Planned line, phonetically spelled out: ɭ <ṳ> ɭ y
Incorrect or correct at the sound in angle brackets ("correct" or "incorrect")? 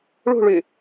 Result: correct